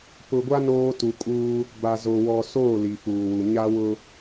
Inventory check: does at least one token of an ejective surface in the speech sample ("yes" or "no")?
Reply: yes